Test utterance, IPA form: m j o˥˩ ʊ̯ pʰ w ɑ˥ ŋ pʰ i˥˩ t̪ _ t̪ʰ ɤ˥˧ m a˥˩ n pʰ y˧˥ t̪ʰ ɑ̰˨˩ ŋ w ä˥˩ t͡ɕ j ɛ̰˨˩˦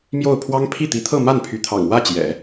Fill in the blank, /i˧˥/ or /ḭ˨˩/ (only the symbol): i˧˥